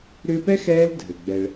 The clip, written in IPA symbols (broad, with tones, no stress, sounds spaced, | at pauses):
ɾ ʏː˦ p ɛ˥ x ɛː˦ l dʱ ɘ˩ ɡ͡b ɛ˨ ɭ